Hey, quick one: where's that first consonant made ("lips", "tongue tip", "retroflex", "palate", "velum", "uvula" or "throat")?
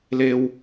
tongue tip